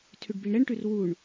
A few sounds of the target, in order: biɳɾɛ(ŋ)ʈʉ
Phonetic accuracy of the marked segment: incorrect: ɳ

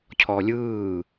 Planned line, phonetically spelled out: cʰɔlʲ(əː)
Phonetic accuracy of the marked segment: incorrect: ɯː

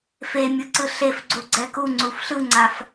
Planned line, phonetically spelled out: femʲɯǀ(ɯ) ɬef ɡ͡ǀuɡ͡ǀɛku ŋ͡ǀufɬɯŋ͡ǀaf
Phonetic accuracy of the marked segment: correct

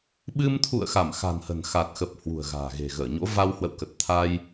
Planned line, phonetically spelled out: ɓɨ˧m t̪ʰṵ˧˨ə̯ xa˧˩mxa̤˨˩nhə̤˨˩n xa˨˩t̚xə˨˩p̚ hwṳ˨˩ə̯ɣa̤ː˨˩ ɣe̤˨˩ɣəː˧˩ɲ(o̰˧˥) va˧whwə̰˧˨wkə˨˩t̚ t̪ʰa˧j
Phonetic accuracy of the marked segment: correct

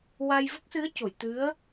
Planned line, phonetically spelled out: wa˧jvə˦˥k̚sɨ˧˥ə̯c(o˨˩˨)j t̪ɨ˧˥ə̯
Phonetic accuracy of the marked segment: correct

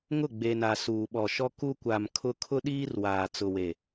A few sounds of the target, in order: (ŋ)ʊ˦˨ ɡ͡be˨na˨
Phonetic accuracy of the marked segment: correct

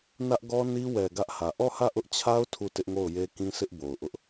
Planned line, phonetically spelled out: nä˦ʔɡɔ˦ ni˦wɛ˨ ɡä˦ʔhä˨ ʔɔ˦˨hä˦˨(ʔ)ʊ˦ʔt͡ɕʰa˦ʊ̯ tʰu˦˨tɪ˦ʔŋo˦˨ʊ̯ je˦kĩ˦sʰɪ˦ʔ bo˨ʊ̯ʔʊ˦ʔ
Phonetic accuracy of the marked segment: correct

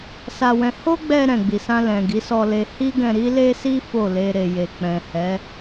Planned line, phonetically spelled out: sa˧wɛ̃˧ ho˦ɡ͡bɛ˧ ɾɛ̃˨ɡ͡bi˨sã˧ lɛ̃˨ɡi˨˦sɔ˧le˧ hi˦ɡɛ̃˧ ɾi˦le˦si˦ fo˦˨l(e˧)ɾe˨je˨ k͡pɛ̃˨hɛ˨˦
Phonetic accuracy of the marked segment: correct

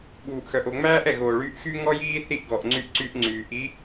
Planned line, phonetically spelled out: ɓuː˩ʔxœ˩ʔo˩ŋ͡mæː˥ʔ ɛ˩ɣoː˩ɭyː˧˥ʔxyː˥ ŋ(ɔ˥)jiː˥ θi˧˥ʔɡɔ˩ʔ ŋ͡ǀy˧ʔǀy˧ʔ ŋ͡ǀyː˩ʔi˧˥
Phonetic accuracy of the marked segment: correct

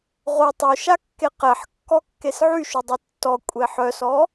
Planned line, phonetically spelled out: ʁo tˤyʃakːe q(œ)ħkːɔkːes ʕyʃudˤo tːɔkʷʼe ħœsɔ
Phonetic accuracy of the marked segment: incorrect: ɛ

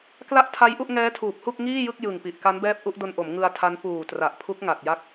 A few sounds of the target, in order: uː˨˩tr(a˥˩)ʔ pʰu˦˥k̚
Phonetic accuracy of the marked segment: incorrect: a˨˩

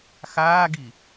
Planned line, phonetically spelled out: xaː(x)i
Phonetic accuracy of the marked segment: incorrect: ɡ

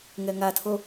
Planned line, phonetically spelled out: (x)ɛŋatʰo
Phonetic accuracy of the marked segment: incorrect: ŋ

